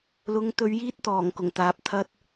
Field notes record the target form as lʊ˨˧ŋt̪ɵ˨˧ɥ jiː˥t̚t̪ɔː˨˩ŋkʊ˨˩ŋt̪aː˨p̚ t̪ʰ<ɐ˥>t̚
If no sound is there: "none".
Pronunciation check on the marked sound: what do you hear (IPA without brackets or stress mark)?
ɐ˥